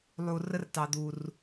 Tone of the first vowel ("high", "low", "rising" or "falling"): low